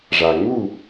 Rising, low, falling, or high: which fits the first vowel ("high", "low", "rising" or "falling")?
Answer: low